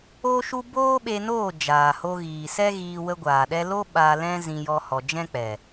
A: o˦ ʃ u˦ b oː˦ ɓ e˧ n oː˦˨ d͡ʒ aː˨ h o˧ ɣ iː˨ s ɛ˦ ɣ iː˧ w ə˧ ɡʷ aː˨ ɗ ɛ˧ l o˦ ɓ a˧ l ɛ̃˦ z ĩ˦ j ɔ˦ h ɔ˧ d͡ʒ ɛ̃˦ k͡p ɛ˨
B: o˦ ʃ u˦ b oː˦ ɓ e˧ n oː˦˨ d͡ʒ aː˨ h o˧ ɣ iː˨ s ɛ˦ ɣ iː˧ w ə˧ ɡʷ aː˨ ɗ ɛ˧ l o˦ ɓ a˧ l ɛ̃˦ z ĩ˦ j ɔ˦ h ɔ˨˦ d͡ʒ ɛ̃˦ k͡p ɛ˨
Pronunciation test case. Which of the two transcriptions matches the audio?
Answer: A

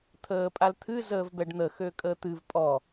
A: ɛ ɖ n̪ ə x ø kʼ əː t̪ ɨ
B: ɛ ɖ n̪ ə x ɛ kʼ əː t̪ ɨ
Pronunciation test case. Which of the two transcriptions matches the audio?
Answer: A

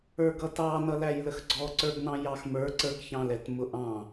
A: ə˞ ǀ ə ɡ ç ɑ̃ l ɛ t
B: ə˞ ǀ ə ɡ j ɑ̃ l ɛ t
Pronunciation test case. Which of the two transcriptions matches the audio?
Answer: A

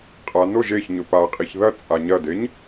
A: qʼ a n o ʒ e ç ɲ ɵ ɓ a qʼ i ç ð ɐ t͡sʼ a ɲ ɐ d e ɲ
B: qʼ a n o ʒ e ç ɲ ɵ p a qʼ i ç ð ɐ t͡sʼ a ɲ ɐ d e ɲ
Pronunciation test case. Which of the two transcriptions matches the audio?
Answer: B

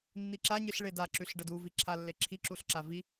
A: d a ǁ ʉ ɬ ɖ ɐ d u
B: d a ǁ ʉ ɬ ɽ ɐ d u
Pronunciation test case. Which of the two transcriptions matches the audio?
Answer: A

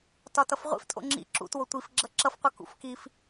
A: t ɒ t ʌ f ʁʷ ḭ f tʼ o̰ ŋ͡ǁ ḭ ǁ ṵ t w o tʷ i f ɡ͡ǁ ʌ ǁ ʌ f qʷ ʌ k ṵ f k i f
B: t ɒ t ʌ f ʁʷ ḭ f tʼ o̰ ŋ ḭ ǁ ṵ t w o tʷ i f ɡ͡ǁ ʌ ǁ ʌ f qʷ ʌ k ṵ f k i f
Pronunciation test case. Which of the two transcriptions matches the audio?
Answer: A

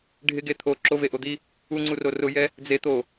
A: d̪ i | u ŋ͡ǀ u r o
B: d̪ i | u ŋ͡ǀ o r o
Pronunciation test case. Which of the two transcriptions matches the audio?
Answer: A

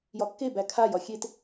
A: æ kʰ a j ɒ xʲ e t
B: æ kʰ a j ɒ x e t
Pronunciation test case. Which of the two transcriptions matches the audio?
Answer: A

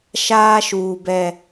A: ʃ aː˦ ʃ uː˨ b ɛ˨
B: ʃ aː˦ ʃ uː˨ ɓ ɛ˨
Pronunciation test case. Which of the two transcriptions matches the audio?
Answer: A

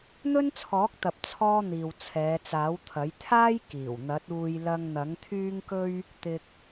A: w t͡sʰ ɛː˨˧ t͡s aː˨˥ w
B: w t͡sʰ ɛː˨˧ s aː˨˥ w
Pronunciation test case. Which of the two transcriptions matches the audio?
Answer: A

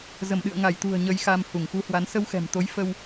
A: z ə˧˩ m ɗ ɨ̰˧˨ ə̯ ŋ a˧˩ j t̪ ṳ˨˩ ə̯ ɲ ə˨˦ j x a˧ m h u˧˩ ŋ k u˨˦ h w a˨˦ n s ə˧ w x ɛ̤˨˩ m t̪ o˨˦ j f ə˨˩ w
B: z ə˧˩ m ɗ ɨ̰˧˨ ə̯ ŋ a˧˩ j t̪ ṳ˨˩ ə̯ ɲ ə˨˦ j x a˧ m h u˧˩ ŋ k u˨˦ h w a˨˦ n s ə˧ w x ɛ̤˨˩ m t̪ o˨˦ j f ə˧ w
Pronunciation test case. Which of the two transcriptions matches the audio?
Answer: B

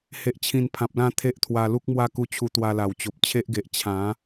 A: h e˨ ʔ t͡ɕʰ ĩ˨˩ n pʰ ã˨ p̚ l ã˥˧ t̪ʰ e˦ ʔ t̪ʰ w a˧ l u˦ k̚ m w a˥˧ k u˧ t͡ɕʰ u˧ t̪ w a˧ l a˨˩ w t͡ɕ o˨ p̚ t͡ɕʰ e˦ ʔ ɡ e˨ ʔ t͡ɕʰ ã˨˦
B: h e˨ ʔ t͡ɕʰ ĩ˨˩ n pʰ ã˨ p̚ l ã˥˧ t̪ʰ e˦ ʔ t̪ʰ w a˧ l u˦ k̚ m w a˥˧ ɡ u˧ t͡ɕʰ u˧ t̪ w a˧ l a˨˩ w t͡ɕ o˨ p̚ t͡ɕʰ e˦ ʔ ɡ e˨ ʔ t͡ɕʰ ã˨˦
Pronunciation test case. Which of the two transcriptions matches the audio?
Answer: A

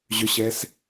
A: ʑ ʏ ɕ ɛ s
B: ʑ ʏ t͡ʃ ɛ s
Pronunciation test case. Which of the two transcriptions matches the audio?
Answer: A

